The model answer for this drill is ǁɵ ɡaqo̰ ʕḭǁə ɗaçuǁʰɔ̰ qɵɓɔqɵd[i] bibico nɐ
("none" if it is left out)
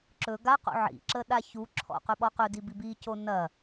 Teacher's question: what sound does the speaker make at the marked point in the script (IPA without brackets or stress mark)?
i